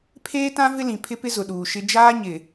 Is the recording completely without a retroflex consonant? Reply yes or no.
yes